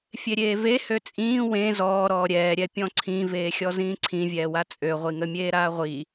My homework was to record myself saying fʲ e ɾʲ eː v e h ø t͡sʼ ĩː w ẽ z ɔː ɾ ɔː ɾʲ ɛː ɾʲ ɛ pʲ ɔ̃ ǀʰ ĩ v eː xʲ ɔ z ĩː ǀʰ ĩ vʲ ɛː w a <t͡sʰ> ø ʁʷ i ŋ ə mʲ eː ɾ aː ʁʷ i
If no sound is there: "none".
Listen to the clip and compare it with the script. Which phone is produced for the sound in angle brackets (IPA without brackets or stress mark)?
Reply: t͡sʼ